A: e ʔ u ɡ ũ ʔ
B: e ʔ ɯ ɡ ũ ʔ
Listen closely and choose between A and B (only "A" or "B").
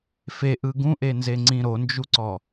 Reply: B